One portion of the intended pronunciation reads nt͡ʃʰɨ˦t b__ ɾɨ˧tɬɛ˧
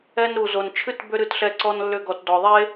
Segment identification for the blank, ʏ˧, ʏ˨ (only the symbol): ʏ˧